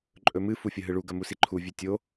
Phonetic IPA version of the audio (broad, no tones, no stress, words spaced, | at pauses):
ǃʼɵmɨ fufʲɐɦɨɭu ɡɐmusiǃʰu vʲʉtʲo